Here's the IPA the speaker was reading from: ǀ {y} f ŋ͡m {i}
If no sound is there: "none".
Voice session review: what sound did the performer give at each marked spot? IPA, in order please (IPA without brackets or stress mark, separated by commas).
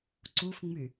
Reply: u, y